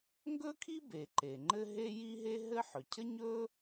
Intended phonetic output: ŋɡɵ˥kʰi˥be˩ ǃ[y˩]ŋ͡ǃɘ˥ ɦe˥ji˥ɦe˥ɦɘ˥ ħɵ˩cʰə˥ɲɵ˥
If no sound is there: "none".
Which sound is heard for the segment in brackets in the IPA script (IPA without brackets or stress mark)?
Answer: e˩